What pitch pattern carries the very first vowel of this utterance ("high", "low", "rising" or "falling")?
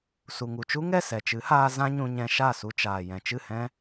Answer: low